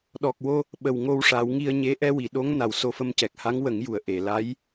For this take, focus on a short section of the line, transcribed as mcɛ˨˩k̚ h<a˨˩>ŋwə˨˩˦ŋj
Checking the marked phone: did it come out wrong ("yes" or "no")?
yes